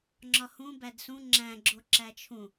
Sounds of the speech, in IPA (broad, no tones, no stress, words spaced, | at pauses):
ŋ͡ǁɒhũ bædsũ ŋ͡ǁæ̃ɡ͡ǁo ǁæt͡ʃʰũ